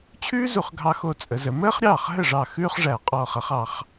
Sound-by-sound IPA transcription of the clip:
t͡ɕʰ ʉː˥ z u˧˩ χ ɡʱ ɑ˧ x o˧ t͡sʼ ə˩˧ z ə˩˧ m əː˥ χ ɾʲ ɑː˥˩ χ ɦ ə˥˩ ʐ ɑ˧˩ x ʉː˥ χ ʐ æ˧˩ qʼ ɔː˧˩ χ ʌ˥ χ ɑ˧ χ

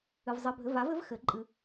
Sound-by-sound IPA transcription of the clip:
ɨ˧ v zˤ ɘ˧˥˧ bʱ ɘ˧˥˧ v a˨˥ v ɘ˨˥ v x ɘ˨˩˦ ǃʼ ɨ˧

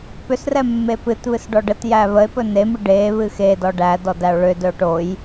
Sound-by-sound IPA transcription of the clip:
p ʏ s r ɛ mː e p ɨ t β ɨ s ɖ ɔ ɖ ə t j æ β ə e̯ p ɵ n e m ɨ ɖ e β ɨ x e d ɔ ɖ æ d ɔ d æ o̯ ɭ ʏ d ɵ o̯ ʈ o j

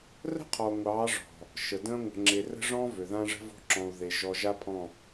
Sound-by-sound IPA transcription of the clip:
r ə̤˦ qʰ ɔ˨ ŋʷ ɑː˨˦ ʐ ɔ̤˨ | ʃ ə˨ d ə̃ː˦ ŋʷ ə̤˨ ŋ͡ǁ e˨ r ə̤˦ ʐ ɔ̃˦ v ø˨ ð ã˦ ʐ ə̤˦ v o̤˦ ǁ ɔ̃˨ u̯ ð e˨ ʒ ɔ˨ ʒ a˦ pʰ ɔ̃˦˨

